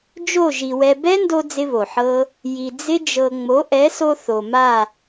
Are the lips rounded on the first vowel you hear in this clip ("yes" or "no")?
yes